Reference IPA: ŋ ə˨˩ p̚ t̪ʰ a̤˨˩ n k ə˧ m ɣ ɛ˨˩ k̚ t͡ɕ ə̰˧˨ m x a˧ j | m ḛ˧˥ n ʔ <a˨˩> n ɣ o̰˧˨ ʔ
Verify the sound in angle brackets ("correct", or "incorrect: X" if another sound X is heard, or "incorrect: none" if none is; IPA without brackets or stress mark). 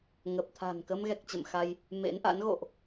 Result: incorrect: a̰˧˥